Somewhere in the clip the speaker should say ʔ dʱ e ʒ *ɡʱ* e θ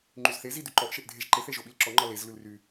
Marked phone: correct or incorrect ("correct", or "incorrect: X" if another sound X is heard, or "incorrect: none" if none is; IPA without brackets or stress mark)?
incorrect: ǃ